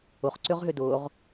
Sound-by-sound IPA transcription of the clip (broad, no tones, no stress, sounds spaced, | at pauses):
ʊ χ ǀ ʏ ʁ ɦ ʏ d ʊː ʁ